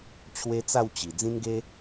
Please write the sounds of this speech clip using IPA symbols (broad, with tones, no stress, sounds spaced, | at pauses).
t͡ɕʰ w e˦ t͡s a˥˧ w t͡ɕ i˨˩ d͡z ĩ˧ n ɡ e˧